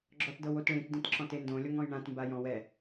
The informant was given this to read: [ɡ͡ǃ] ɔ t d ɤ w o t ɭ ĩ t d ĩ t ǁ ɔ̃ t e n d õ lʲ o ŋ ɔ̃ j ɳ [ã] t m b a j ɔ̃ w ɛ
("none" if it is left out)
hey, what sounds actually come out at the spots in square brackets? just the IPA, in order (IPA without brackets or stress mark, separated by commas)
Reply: ɡ͡ǁ, ã